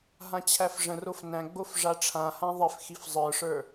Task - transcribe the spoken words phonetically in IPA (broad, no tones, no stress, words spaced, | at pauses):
ɦãt͡ɕʰæfʐə̃rof næ̃ɡ͡bof ʐaʈ͡ʂʰãhã ðˤɪfxif zˤə˞ʂə˞